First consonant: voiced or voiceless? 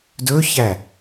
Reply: voiced